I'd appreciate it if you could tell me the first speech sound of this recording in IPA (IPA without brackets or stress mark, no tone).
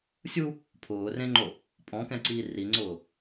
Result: sʲ